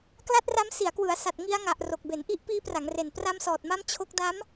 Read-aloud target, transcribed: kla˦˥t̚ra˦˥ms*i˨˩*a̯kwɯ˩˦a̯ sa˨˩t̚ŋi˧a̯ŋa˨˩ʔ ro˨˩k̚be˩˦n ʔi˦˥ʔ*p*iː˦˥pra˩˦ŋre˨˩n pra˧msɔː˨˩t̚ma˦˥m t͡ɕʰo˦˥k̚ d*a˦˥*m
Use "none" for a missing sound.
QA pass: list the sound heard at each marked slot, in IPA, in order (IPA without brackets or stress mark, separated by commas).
i˩˦, p, a˦˥